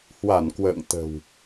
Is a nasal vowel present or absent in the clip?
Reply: absent